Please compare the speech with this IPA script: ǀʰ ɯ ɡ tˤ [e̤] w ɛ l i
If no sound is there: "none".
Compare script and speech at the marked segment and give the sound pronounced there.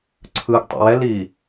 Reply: ḛ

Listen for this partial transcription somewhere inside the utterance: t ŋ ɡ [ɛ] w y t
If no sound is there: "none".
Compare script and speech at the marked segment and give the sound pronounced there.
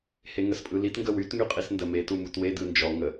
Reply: ə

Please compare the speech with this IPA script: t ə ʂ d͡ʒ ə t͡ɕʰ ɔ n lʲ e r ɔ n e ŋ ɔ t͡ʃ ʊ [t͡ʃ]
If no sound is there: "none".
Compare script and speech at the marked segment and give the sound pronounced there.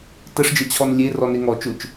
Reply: t͡ʃ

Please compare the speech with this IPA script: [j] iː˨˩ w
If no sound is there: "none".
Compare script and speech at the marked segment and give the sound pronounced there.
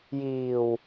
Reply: j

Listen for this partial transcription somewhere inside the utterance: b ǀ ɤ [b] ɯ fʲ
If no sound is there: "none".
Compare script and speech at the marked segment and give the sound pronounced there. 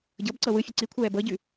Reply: w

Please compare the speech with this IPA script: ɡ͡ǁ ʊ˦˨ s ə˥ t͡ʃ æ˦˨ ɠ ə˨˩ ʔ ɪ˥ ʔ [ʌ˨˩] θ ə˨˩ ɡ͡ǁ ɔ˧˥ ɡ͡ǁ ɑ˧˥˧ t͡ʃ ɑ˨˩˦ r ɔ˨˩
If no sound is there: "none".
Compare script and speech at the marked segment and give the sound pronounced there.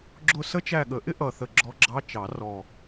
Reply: ʌ˨˩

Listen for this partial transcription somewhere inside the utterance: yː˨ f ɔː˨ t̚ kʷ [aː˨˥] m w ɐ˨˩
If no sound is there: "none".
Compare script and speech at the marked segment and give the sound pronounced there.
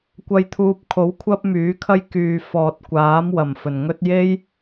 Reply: aː˨˥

